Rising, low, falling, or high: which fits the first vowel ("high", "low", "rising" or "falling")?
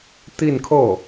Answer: falling